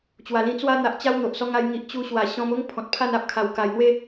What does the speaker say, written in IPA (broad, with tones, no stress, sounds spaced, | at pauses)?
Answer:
t͡ɕ w a˨˩ l ĩ˧ t͡s w a˦ n̪ a˨ ʔ t͡ɕ a˦ w n̪ o˨ ʔ s ɔ˧ ŋ a˧ j ŋ i˨ ʔ t͡ɕ u˧ ɕ w a˨˩ ɕ ɔ̃˧ m o˦ ŋ pʰ ɔ̃˨ t̚ pʰ a˥˧ n a˦ p̚ kʰ a˨˩ w k a˨˩ j n̪ w e˥˧